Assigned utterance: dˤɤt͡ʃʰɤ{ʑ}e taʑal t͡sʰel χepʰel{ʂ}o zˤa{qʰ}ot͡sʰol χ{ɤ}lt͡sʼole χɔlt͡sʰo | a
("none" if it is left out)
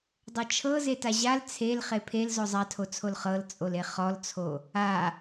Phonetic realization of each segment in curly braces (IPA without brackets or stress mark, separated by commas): z, z, tʰ, ɤ